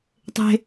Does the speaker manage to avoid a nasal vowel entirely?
yes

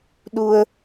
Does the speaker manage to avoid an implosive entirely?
no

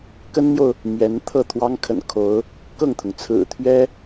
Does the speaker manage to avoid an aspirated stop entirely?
no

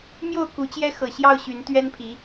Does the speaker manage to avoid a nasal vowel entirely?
yes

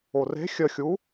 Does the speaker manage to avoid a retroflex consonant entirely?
yes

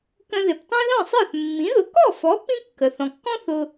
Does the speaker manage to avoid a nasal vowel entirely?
no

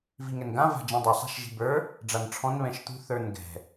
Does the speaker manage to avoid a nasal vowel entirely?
no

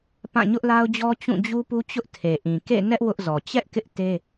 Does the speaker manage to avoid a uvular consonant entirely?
yes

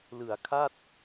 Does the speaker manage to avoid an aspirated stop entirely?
no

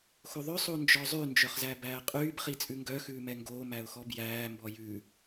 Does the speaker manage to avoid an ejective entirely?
no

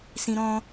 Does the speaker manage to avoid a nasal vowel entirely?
no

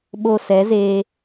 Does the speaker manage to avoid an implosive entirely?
no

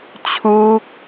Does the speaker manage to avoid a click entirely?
yes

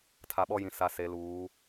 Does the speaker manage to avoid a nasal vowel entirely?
no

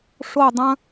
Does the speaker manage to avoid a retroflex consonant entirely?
no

